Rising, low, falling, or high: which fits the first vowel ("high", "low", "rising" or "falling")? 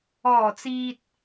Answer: low